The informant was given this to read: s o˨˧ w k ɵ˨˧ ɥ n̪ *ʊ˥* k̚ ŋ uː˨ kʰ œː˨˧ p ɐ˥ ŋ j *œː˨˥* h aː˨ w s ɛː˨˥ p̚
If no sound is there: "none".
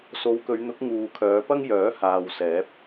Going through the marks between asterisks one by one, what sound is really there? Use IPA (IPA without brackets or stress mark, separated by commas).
ʊ˨˥, œː˨˥